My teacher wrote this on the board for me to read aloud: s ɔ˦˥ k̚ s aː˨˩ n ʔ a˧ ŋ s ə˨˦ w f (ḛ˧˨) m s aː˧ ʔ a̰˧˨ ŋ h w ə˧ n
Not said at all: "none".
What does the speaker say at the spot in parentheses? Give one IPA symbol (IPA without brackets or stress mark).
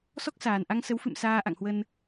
ɨ̰˧˨